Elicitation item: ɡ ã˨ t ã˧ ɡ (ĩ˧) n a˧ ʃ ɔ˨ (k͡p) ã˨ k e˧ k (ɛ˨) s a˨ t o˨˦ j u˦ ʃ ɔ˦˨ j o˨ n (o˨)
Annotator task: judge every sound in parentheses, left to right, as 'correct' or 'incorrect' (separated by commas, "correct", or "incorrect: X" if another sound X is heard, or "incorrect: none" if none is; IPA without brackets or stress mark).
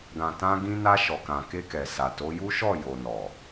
correct, incorrect: k, correct, incorrect: ɔ˨